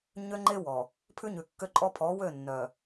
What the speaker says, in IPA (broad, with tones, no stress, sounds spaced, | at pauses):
ɲ ø˦ ŋ͡ǃ e˦ w ɔ˨ | pʰ ʉ˦ ɲ ʉ˨ kː ø˦ ǃʼ ɔ˦ pʰ ɔ˨˦ w ø˦˨ nː œ˨